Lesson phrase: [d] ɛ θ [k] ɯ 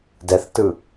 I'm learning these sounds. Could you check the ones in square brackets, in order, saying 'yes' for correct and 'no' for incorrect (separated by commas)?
yes, no